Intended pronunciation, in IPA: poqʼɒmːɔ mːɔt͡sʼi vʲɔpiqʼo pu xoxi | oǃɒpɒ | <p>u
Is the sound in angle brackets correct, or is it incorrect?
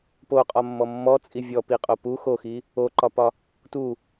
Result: incorrect